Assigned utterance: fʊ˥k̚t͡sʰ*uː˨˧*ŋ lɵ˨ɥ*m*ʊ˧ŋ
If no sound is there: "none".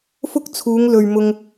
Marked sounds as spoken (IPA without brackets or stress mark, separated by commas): uː˨˧, m